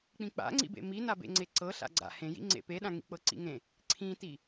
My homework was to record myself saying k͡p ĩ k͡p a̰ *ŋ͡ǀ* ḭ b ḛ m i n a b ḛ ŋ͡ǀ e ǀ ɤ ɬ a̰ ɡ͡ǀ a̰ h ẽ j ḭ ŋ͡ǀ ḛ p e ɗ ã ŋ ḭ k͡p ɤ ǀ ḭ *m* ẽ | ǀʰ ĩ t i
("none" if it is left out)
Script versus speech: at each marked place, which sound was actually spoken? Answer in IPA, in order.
ŋ͡ǀ, ŋ

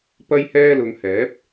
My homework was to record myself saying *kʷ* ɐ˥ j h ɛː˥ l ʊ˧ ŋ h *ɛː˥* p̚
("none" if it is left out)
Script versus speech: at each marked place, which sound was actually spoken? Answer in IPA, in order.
p, ɛː˨˥

